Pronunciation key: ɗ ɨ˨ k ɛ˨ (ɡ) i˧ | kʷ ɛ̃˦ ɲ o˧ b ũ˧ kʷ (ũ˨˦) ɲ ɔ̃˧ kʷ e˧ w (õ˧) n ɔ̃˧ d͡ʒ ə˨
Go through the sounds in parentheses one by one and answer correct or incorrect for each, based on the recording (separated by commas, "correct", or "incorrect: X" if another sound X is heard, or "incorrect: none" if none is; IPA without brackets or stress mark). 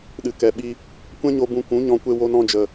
incorrect: ɓ, correct, incorrect: o˧